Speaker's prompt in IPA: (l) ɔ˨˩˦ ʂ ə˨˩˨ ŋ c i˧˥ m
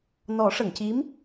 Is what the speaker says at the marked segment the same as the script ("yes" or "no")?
no